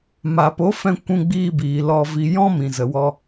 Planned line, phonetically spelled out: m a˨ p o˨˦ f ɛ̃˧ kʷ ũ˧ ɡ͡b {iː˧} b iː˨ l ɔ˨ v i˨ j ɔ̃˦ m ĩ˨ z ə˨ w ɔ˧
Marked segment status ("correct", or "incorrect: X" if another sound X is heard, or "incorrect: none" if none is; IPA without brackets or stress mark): correct